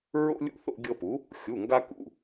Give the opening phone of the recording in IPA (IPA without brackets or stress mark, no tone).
ɹ